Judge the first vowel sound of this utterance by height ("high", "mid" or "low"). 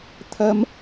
low